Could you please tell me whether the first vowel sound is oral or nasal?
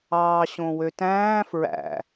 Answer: oral